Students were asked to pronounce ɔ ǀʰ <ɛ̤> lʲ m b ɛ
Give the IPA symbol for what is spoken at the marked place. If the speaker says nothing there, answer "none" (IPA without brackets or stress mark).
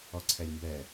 ɛ